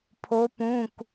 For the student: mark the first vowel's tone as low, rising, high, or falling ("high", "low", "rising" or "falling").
rising